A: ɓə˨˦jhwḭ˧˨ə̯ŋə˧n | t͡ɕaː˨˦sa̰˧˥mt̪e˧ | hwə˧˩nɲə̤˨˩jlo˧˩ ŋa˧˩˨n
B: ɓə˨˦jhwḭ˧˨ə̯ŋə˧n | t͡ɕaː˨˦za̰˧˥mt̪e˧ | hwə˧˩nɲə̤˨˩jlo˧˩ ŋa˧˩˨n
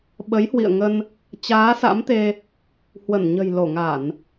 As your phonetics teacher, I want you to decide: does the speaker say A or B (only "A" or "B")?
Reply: A